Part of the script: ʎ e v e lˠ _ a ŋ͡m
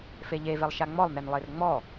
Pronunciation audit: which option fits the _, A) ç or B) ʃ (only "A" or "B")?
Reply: B